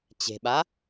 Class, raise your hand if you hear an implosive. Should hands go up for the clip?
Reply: yes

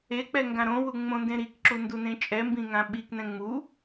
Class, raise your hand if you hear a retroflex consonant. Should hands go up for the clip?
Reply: no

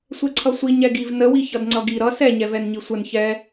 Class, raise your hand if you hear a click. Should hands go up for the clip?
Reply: yes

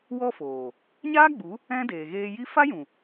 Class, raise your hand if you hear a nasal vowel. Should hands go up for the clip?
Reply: yes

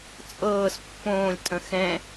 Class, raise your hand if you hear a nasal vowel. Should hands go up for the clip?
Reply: yes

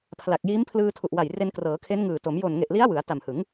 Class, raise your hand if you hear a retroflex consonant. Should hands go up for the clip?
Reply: no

